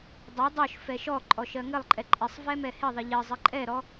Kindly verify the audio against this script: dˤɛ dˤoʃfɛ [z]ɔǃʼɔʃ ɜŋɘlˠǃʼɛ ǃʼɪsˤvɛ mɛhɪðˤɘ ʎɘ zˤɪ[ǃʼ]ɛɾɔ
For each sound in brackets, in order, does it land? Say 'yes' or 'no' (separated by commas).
no, yes